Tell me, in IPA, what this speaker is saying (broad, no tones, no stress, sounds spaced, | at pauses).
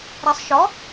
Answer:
ɾ ɛ sˤ ʃ ɔ